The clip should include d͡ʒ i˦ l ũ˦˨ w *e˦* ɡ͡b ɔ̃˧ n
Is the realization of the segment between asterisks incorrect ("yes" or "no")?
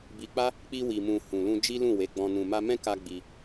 yes